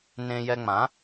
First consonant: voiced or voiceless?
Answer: voiced